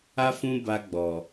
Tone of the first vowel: high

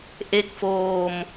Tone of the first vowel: low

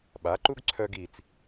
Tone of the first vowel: rising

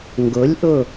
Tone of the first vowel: rising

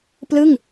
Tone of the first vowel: falling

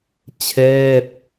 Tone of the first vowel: falling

